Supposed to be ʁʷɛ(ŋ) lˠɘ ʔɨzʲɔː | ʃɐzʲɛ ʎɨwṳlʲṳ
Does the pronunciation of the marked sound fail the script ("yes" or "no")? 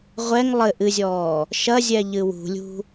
no